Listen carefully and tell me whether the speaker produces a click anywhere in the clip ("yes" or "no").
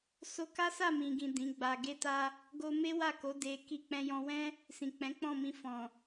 no